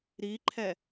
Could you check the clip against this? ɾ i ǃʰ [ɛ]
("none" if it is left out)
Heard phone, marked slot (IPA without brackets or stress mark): ɛ